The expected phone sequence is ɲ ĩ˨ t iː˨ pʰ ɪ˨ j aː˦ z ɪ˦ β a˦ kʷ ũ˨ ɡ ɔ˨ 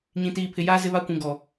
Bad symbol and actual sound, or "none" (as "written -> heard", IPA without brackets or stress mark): none